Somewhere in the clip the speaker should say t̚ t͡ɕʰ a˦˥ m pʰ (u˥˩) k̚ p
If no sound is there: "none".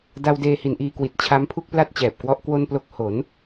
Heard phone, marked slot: u˥˩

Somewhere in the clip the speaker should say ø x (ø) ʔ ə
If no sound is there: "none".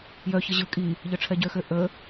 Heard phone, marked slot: ø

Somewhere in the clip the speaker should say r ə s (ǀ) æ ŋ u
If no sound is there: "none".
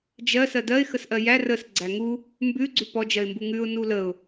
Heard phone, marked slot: ɡ͡ǀ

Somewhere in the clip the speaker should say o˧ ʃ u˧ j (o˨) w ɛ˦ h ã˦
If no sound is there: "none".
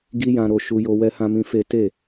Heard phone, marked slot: o˧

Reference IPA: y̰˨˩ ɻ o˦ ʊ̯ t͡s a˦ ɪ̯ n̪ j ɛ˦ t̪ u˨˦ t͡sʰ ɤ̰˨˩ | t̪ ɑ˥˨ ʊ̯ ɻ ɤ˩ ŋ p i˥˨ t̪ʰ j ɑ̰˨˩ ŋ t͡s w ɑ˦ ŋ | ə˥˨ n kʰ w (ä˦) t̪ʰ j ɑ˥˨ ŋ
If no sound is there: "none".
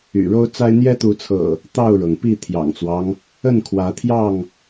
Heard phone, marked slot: ä˨˦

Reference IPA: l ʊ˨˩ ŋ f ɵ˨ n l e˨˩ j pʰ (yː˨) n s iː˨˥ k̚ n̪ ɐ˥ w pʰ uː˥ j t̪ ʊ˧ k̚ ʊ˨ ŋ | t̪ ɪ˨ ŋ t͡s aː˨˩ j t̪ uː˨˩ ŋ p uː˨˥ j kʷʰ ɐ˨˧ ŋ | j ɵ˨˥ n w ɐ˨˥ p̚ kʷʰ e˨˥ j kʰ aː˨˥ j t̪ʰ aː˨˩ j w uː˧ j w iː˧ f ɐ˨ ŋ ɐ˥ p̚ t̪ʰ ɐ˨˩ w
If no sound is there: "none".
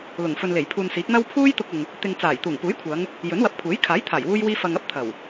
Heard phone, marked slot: uː˨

